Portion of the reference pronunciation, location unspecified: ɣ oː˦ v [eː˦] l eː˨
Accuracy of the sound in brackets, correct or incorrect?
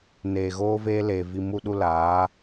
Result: correct